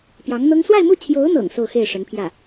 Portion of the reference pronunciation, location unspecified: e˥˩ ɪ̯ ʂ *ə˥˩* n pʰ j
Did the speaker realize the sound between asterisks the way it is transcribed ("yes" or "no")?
no